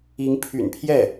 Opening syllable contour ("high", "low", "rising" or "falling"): rising